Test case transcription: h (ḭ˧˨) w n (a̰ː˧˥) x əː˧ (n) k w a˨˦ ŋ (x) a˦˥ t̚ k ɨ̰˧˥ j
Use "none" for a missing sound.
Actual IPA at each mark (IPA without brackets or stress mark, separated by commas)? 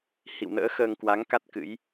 ḭ˧˨, ə̰ː˧˥, ŋ, k